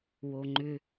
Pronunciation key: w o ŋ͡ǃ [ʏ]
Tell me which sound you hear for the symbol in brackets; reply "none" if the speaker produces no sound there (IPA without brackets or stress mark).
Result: ʏ